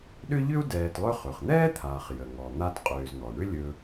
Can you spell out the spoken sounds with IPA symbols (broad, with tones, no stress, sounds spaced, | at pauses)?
ɗ ʏ˥ ʎ ʏ˥ u̯ d ɛː˨ t lˠ ɵ˦ χ ɵ˩ χ n̪ ɛː˥ t̪ʰ aː˩ χ j ə˩ ŋ ɔ˩ n̪ a˦ t qʼ ʏː˨ z n̪ ɔ˩ ɳ ʏ˥ lʲ ɵ˨